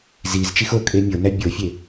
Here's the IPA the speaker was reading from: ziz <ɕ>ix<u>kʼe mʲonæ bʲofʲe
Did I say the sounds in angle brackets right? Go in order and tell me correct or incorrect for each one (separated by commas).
incorrect, incorrect